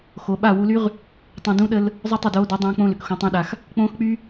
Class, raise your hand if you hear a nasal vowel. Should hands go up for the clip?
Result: yes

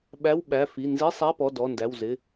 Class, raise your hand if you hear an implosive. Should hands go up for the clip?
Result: yes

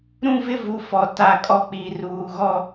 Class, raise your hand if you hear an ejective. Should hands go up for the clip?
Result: yes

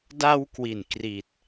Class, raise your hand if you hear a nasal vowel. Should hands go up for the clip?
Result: no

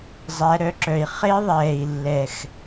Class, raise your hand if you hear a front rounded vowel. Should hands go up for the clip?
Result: yes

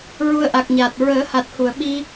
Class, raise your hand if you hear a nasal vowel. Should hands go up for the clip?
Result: no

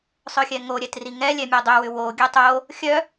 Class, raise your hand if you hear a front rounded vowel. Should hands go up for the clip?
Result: yes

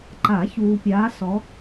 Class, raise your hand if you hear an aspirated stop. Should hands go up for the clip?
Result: no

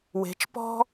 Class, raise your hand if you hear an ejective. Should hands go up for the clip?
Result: no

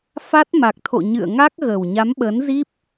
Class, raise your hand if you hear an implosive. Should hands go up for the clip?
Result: yes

